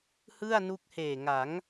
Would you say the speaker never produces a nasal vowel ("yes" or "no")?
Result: yes